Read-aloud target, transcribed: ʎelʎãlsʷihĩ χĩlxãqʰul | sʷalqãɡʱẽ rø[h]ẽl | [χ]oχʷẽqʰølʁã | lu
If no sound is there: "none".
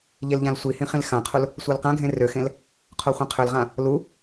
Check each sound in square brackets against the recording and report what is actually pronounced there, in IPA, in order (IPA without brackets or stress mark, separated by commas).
x, qʰ